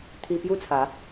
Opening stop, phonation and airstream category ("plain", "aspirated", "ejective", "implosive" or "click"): aspirated